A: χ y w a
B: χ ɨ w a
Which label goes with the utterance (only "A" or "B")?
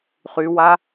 A